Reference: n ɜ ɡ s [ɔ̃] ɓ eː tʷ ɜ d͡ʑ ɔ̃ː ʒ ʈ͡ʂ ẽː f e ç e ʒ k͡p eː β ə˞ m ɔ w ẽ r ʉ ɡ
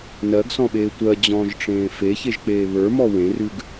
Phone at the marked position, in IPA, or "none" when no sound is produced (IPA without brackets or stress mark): ɔ̃